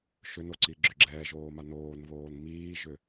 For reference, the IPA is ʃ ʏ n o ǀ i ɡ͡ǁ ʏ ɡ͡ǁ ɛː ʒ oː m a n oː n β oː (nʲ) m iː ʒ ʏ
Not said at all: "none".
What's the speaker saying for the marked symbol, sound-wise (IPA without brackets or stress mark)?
n